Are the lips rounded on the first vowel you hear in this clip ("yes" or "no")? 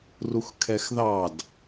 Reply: yes